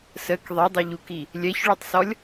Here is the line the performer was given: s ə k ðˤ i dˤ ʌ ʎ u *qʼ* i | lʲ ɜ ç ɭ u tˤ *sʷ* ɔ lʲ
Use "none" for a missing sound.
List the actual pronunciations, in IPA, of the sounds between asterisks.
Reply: k, s

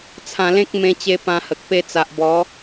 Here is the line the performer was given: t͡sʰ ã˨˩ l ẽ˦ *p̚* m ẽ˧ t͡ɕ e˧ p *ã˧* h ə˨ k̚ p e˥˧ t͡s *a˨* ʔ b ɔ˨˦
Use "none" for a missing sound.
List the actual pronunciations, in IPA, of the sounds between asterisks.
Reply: k̚, ã˧, a˨

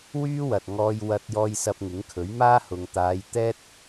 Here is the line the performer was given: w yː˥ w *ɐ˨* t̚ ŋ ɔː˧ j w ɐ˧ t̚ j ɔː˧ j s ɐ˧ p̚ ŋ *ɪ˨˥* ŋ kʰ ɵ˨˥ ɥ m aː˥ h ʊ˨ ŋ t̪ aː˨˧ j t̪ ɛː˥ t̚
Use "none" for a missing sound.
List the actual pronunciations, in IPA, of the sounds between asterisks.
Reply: ɐ˨, ɪ˨˥

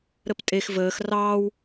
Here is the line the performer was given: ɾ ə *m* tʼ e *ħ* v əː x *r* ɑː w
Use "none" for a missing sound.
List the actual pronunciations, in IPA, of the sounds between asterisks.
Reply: p, x, r

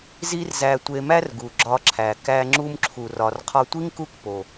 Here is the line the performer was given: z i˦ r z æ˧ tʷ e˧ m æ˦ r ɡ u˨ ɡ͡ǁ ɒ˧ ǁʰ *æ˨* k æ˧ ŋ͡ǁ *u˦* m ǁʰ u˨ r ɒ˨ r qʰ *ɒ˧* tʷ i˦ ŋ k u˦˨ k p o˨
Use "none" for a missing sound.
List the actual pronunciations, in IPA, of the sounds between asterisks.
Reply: æ˨, u˧, ɒ˧

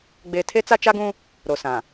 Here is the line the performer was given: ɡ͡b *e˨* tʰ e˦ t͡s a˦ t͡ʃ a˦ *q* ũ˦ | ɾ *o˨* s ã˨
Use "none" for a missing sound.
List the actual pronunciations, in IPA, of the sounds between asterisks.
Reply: e˦, ɡ, o˨

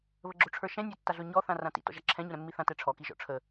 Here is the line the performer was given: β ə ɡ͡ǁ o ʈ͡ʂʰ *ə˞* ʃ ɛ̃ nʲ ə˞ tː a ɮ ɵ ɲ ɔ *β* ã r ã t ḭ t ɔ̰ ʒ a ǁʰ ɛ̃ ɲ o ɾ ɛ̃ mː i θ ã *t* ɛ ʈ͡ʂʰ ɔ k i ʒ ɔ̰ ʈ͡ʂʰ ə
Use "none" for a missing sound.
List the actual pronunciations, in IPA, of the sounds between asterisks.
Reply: ə˞, θ, t

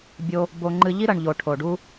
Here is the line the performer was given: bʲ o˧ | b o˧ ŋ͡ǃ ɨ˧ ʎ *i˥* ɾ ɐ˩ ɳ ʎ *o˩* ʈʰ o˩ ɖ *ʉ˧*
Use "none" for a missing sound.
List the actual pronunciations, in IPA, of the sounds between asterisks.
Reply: i˥, o˩, u˧

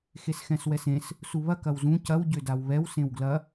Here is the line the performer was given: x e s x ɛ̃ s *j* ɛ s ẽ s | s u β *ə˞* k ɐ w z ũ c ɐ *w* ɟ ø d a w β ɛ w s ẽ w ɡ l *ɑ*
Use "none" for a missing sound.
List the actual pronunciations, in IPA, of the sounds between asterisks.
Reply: w, ɐ, w, ɐ

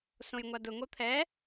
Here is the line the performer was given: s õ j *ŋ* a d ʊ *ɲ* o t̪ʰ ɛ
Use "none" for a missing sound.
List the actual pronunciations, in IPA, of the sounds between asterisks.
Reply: ŋʷ, ŋ

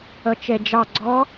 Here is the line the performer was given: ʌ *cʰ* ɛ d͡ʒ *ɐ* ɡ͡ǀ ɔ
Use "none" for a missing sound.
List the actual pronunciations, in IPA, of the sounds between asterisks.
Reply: t͡ʃ, ɑ

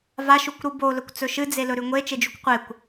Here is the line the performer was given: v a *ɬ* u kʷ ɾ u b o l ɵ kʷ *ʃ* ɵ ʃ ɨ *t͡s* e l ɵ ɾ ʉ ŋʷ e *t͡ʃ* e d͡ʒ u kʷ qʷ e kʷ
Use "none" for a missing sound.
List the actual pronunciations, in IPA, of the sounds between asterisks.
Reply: ʃ, t͡s, d͡z, t͡ʃ

